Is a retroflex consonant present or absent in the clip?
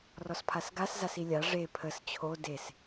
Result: present